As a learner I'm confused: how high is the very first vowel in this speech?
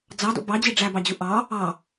low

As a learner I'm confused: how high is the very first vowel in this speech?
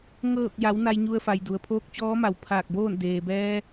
mid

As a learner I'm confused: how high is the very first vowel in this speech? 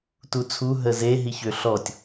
high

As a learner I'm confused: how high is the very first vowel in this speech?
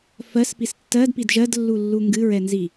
mid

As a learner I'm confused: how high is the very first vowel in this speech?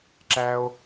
low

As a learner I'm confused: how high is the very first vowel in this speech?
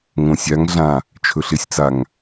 mid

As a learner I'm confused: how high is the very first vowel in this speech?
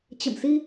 mid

